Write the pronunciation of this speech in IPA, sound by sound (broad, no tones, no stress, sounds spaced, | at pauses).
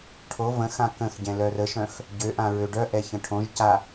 ʈʰ o v ə̃ x ã k ə̃ x ɟ ɛ̃ l œ r ə ʃ œ̃ x | ɟ ø ʔ ã ɹ ø ɖ œ ʔ ɛ ç ə̃ ʈʰ õ ʒ c a